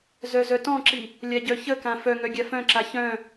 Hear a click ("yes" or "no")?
yes